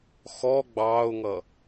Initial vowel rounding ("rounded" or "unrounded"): rounded